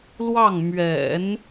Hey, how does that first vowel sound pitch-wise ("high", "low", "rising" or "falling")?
falling